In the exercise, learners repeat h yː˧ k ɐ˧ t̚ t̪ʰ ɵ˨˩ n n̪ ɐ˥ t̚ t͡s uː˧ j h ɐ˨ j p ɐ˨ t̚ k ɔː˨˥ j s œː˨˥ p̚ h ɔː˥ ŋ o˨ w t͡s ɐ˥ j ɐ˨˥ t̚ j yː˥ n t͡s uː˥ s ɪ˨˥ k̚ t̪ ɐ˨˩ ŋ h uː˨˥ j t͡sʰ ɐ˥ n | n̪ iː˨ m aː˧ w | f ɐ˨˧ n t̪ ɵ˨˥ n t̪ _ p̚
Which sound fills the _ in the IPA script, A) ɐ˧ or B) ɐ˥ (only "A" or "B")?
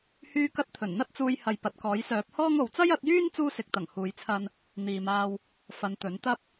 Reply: B